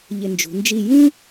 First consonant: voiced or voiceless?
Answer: voiced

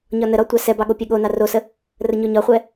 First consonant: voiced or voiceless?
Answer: voiced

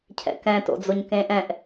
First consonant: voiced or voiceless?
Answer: voiceless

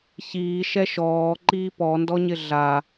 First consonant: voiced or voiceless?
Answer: voiceless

